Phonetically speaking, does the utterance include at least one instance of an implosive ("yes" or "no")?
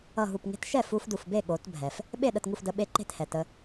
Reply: yes